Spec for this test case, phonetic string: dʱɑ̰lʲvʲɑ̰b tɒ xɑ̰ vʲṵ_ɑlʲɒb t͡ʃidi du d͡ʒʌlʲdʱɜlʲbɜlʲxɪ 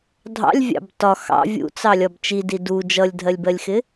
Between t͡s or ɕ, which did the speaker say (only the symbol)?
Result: t͡s